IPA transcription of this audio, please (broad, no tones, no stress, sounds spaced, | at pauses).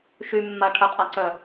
ʃ y mː a ʈʰ ə qʼ a ǀ œ